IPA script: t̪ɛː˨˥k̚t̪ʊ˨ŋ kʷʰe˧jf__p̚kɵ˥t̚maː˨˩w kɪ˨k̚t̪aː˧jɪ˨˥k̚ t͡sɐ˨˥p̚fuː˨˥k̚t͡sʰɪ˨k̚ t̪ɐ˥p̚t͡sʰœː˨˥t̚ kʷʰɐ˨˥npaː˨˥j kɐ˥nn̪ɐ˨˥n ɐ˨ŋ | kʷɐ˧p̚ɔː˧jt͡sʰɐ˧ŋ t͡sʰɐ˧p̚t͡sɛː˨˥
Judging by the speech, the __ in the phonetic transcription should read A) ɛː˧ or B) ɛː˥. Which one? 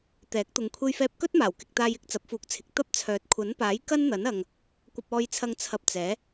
A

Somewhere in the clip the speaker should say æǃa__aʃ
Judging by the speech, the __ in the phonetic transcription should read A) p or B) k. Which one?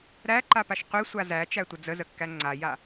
A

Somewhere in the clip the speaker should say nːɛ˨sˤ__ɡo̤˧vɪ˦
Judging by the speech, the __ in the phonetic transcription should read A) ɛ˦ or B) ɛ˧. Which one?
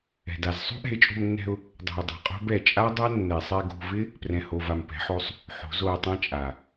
B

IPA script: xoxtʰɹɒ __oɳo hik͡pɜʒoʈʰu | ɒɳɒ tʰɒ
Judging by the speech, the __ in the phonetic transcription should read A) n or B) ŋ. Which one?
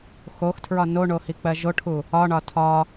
A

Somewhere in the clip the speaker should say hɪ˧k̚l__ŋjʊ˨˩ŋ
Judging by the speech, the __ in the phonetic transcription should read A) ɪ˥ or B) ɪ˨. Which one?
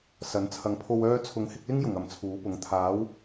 A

